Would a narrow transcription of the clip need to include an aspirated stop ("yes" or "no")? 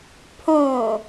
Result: yes